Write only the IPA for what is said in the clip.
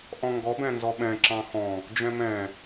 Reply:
ʔ ɔ̃ ŋ ɡ ɔ b ɛ̃ n z ɔ ɓ ɛ̃ ǁ ɑ̃ x ɔ̃ | d͡ʒ ɛ̃ m ɛ̃

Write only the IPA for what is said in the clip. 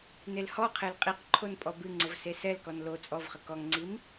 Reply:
n e l h ɔ qʰ e l qʼ i q ǃʰ o n pʼ ɔ b ɨ ŋ͡ǀ ə v s e s ɛ l k ɔ n l o t͡sʼ ɔ v χ ə k ɔ ŋ ŋ͡ǀ i m

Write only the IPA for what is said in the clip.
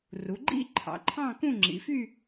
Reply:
r u˩˧ ɡ͡ǃ ḭ˥˧ ǃʰ ɑ̰˩˧ ǃʰ ɑ̃˥˧ k ũ˥˧ ŋ͡ǁ ḭ˩˧ f y˥˧

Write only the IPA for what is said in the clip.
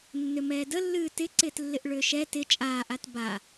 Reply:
nː ʏ m ɛː d ə lː ɨː t ɪ ǀ ɪː t lː ɪ ʔ ɭ ʏː ʃ ɛ t ɪ t͡ʃʼ aː ʔ a t b a

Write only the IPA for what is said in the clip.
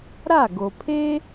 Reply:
ɾ a˥˩ ɡ o˩ pʰ e˥

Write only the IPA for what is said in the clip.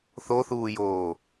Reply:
θ o θ uː j oː

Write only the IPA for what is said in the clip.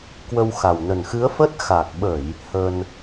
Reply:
k w ə˧ w x a˨˩ w n ə˨˩ n x ɨ˨˦ ə̯ f ə˦˥ t̚ x a˨˩ k̚ ɓ ə˧˩˨ j | h ə˧ n

